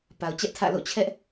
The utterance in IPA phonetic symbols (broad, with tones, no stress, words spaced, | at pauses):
pa˨ʊ̯t͡ɕɛ˦ʔtʰä̰˦˨lo̰˦˨ t͡ɕʰɛ˦ʔ